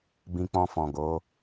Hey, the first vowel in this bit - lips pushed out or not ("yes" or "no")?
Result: no